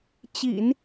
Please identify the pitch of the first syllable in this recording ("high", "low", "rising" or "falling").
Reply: low